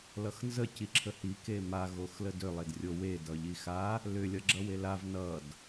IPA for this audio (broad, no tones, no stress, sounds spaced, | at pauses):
l ʌ x n z ə c i ǁʰ ə h i k e m a ɣ o x l ə d ʏ lˠ e d rʲ o w e d ʌ ʎ i x a | l ʏ lʲ ʌ ɡ͡ǁ ʌ w e l a v n ʌ d